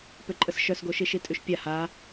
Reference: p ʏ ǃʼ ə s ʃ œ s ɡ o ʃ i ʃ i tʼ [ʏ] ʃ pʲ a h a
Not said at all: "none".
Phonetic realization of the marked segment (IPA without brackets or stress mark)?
y